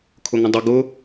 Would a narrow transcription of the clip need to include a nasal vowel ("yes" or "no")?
yes